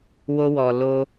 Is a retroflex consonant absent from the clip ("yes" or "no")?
yes